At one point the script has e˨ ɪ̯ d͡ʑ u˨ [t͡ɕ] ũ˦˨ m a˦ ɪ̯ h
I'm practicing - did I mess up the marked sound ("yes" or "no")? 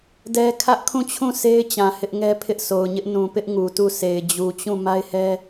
no